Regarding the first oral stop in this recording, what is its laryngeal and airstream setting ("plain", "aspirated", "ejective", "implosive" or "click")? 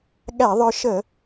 implosive